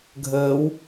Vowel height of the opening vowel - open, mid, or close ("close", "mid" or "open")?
mid